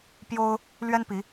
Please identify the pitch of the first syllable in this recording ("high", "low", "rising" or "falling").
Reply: high